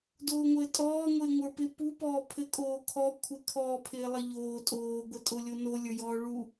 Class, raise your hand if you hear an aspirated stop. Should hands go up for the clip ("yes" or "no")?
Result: yes